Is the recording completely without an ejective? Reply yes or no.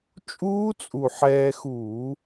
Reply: no